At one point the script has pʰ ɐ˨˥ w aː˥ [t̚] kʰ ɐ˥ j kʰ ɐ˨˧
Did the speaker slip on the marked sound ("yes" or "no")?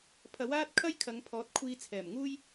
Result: no